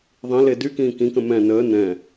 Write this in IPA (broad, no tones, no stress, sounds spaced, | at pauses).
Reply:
ðˤ ĩ l e d y k ĩː k ĩ k ə̃ m ɛ̃ n əː n ɛ̃